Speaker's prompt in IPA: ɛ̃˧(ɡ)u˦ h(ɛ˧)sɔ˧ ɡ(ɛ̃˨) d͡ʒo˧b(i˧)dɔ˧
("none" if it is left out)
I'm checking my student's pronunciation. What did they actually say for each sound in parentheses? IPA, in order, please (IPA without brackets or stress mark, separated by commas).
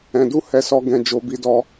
d, ɛ˧, ɛ̃˧, i˧